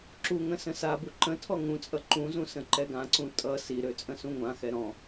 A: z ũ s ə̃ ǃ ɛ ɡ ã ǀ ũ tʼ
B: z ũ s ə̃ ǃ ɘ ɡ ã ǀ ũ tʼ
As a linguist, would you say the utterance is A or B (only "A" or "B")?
A